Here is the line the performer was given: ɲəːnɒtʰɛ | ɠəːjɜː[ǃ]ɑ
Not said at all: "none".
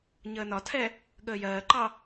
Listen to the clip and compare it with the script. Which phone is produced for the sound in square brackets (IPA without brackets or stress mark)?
ǃ